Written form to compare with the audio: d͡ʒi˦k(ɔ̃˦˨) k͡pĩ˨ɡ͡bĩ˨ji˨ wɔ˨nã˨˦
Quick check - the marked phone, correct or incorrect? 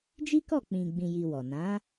incorrect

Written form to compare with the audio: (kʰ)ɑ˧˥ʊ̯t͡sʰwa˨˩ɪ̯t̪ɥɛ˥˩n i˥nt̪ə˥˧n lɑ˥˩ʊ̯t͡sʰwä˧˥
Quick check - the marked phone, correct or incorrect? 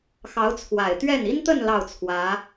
incorrect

